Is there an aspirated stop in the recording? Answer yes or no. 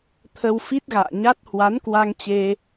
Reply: yes